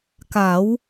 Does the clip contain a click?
no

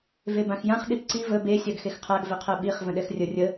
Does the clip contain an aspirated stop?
yes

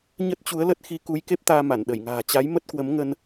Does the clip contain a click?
no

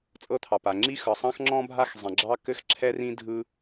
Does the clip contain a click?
yes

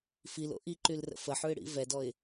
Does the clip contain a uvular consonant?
no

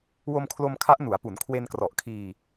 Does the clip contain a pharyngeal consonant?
no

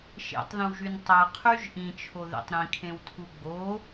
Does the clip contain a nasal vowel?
yes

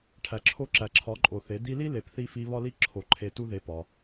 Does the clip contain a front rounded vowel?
no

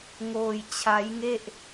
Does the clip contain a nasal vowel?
no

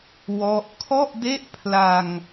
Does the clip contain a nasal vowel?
no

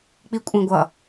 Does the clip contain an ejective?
yes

